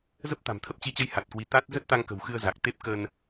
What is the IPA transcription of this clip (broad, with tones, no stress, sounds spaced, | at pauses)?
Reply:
z ə˦˥ p̚ t̪ a̤˨˩ m t̪ʰ ə˦˥ p̚ t͡ɕ i˨˦ t͡ɕ ə˨˦ j h a˨˩ t̚ k w i˨˦ t̪ a˦˥ t̚ z ə˦˥ t̚ t̪ a˧ ŋ k ə̤˨˩ w x ɨ˧ ə̯ z a˨˩ k̚ t̪ e˦˥ p̚ k ə˧ n